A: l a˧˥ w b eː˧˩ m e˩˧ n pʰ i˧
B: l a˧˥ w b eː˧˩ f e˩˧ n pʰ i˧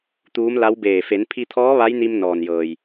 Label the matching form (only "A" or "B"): B